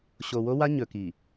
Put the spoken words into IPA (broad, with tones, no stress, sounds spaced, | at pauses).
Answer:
ɕ o˨ w o˦ w a˦ ɲ ɵ˨ k i˨